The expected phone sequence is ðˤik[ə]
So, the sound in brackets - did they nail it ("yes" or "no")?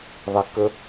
yes